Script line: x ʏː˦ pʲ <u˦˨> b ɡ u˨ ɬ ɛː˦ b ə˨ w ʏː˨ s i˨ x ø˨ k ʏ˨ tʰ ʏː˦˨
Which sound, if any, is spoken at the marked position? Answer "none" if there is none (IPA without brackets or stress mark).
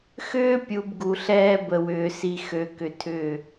u˨